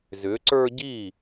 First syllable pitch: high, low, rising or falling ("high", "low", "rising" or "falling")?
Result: rising